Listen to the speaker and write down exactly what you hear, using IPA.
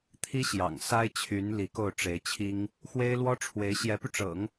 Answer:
t̪ʰ i˥ ɕ j ɑ̰˨˩ ŋ s a˥ ɪ̯ t͡ɕʰ y˧˥ n l i˧˥ k o˥˩ ʊ̯ ʈ͡ʂ e˧˥ ɪ̯ t͡ɕʰ i˥ ŋ | x w e˥ ɪ̯ l w ɔ˥ ʈ͡ʂʰ w e˧˥ ɪ̯ ɕ j ɛ˧˥ p y˧ ʈ͡ʂ ɤ̰˨˩˦ ŋ

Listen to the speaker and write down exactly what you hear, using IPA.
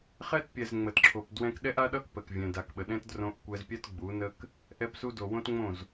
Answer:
χ ɛ˦ t pʲ ɛ˨ z ŋ͡m ə˨ t ǁʰ o˨ p d w ɛ̃˧ k ɗ ɛ˦ ʔ a˦ ɗ ʌ˦ k p ə˨ k vʲ ɛ̃˨ d a˨ k ɓ ə˨ ɗ ɛ̃˦ t d r õ˧ ʔ kʷ ɛ˧ z pʲ ɛ˦ t ɡ͡b u˨˦ n ə˦ k | ʔ ɛ˧ p s u˧ d o˨ w õ˦ t ŋ͡m õ˦˨ z

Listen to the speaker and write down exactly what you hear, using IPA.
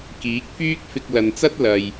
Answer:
k iː˨˥ k̚ f yː˥ k̚ f ɪ˧ k̚ l ɐ˨ n t͡s ɐ˥ t̚ l ɐ˨ j

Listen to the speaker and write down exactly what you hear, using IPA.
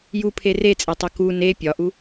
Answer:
j u pʰ e r e t͡sʼ e tˤ o k u n e pʲ ɒ ʔ u

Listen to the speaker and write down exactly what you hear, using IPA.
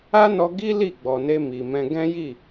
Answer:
a˦ n ɔ˧ ɡ i˦ l i˦˨ ɡ͡b ɔ˨ n e˧ m i˨ m ɛ̃˧ ɡ ɛ̃˦ j i˦˨

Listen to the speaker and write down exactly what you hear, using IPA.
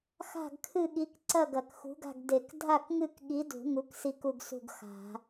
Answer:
x a̤˥˨ ɡ kʰ ɨ˥˨ ɠ i˨˥ k ǀ ɐ˥˨ ɡ ɐ˨˩˦ k x ṳ˨˥ ɡ a̤˥˨ ɡ d e˨˩˦ k dʱ a˥˨ k ŋ ɨ˥˨ k ɠ i˨˥ d ṳ˨˩˦ ŋ u˨˥ k s i˥˨ k u˥˨ ɡ s ṳ˥˨ ɡ x a̤˨˩˦

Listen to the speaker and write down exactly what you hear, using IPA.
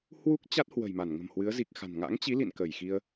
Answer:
h w u˦˥ k̚ t͡ɕ a˦˥ t̚ h w ə̤˨˩ j m a˧˩ n ŋ ə̤˨˩ m h w ɨ˨˦ ə̯ z i˨˩ k̚ x a̤˨˩ n ŋ a̰˧˥ ŋ t͡ɕ i˨˦ l ḭ˧˨ n k ə˧˩ j x i˧ ə̯

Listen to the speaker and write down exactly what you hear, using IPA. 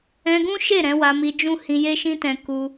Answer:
ɛ̃˧ ɡ ũ˦ ʃ e˦˨ ɾ ɛ̃˨˦ w a˧ m i˧ d͡ʒ ũ˦ h ĩ˧ j e˦ ʃ ĩ˦ t ɛ̃˧ k u˧

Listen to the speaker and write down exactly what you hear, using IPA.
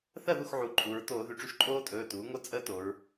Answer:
θ ɜ˥˩ ð u˥˩ x ʕ u˩˧ ǃʼ u˩˧ ɹ t oː˧˩˧ ð y˩˥ ʈ͡ʂ y˩˥ ʃ ǃʼ oː˦ tʼ ɵː˩˧˩ t uː˩˥ ŋ o˦ t͡sʼ əː˦ t o˩˧ ɹ

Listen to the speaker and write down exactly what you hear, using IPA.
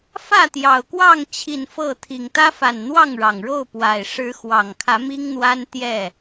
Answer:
f ä˥˨ t̪ j ɑ˨˩ ʊ̯ k w ɑ˥˨ ŋ t͡ɕʰ i˨˩ n f ɤ˥˨ t̪ʰ i˨˩ ŋ t̪ ä˦ f a˨˩ n n̪ w ɑ˥˨ ŋ ɻ ɑ˨˩ ŋ ɻ o˥˨ ʊ̯ p w a˨˩ ɪ̯ ʂ ɻ̩˨˦ x w ɑ˨˩ ŋ kʰ ä˨˦ m i˦ ŋ n̪ w a˦ n t̪ j ɛ˥˨

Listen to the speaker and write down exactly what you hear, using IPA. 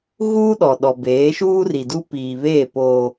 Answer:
ɣ uː˦ ɗ ɔ˨ ɗ ɔ˨ b eː˨˦ ʃ uː˦ r i˨ d u˦ p iː˨ β eː˦˨ p oː˦

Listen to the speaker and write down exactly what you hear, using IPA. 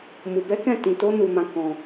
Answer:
m u˧ b ɛ˦ k ɛ̃˦˨ t ĩ˧ t o˦ n u˧ m ã˧ k ɔ̃˧

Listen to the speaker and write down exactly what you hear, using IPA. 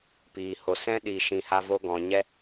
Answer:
p iː˨ h o˨ s ɛ̃˦ ɗ i˨ ʃ ĩ˨ h a˦ v o˦ ɡ ɔ̃˨ ɲ ɛ˦

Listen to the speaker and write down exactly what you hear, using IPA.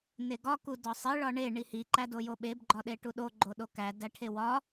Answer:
n e ɡ ɒ k u d ɒ sˤ i ɭ ɒ ɳ e ɳ i h i ǃ æ d o j o ɓ e b ɡ͡ǃ ɒ ɗ e ʈ u ɗ o ɡ͡ǃ o ɗ o k æ d æ ʈʰ e w ɒ

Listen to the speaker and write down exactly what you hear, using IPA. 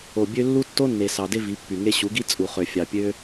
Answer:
o˨ bʲ ø˧ lː u˦ tː o˦ nː e˨ s ɑ˨ d e˦ v i˨˦ pː y˨ ŋ e˧ ɕ u˨˦ ɡ i˦ t͡sʼ u˨ χ ø˨ fʲ ɑ˨ pʲ ø˦

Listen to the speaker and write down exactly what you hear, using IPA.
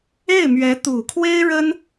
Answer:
e˥˩ ɪ̯ m ɥ ɛ˧˥ t̪ u˨˩ kʰ w e˥ ɪ̯ ɻ ə˥ n

